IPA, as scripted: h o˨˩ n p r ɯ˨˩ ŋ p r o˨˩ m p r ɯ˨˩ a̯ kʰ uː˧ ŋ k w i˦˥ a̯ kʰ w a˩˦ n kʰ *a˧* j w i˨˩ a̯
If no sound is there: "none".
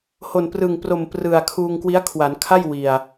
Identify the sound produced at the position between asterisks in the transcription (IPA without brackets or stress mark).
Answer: a˥˩